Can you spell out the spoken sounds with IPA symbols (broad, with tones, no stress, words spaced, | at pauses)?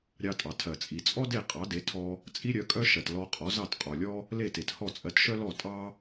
ɾʲɑ˧tʼɑ˩ tʰɜ˩t͡sʼi˩t͡sʼɔ˥ de˥˩qʼɑ˩˥de˩˥tʰɔ˧ | t͡sʼi˥ɾʲœ˩˥kʼœ˥ʃɜ˩t lɔ˧qʼɔ˩˥zɑ˥˩t qʼɔ˩lʲɔ˥ | le˥˩te˩t hɔ˥˩t͡sʼɜ˧tʃœ˥lɔ˥˩ tʼɑ˥